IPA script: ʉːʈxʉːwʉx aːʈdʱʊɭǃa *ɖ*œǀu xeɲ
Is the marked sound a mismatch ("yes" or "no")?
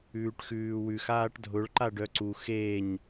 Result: no